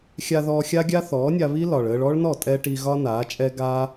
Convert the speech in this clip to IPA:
xʲ a˧ ð ɔː˧ xʲ a˦ ɡʲ a˦ θ ɔː˨˦ nʲ a˧ β i˦ l ɒ˨ ɭ əː˧ ɭ ɔ˦ ɭ n ɔ˦˨ tʼ ɛ˧ ʈ i˧ ɣ ɒ˦ n aː˨˦ t͡ʃʼ ɛ˦ ɡ aː˦

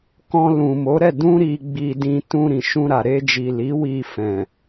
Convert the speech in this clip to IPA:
k ɔ̃˧ l ũ˨ m o˨˦ ɾ ɛ˦˨ d ũ˧ ɾ i˨ ɡ͡b i˨ d ĩ˧ t ũ˧ ɾ ĩ˨ ʃ ũ˧ ɾ a˨ ɾ e˧ d͡ʒ i˨ l i˨˦ w i˧ f ɛ̃˨

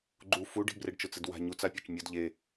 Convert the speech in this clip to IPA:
ɡ͡ǃ u f u ɖ i̤ b r e ɖ t͡ʃ ʊ t͡s ɪ d w a̤ ɲ u t͡s a pʲ a t͡ʃ mʲ ʊ d ʎ e

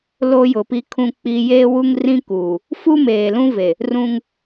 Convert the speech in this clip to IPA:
l o˦ j ʊ˨ p i˦ kʰ ũ˦ k͡p i˦ j eː˦ w u˦ ŋ r ĩ˦ k uː˨ | f u˦ m eː˨ l ũ˦ v e˨ | r ũ˦ ŋ

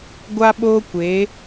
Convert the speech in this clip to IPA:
ɡʷ a˦ ɓ oː˦ kʷ e˨˦

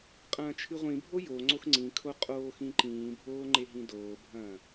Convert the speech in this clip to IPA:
qʼ ɐ̃ː t͡ʃʰ ɨ ʁʷ ĩ bʱ o j o ŋ͡ǀ o x ŋ͡ǀ ĩ kʰ o qʼ oː x ĩ ǃ ĩː bʱ oː ŋ͡ǃ e ɦ ĩ d oː bʱ ɐ̃ː

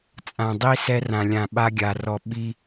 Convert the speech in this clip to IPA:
t͡sʼ ã˨ dˤ i˦ s ɛ˦ r ã˨ lʲ ã˨ ɓ a˦ ɡʲ a˨ r ɔ˨ ɓ i˦

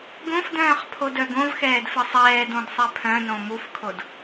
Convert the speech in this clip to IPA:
ɡ õ f d œ̃ː χ pʰ o d œ ɡ õ v x ɛː d f ə sˤ ɛː d õ d sˤ ɛ pʰ œ̃ n õ m u f kʰ o d

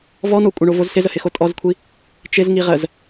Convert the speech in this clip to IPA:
v ɔ n o kʷʼ ə ɳ o v o z s ɪ z ə h ɪ x o tʼ ɔ z kʷʰ i | t͡ʃ ɪ z ŋ i ʁ ə z

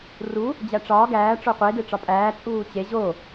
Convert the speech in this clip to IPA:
r u | d͡ʑ æ ʈ͡ʂ ɒː ɡ æː ʈ͡ʂ o qʷ e d e ʈ͡ʂ ɒ pʼ æː t͡sʼ uː t͡ɕ e ʑ o

